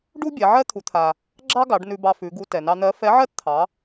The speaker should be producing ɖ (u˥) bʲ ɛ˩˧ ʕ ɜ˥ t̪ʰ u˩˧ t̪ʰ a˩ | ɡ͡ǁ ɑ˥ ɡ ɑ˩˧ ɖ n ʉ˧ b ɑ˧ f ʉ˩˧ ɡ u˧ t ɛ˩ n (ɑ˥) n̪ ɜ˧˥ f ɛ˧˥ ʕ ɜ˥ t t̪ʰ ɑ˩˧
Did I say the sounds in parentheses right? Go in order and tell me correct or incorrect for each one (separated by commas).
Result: correct, incorrect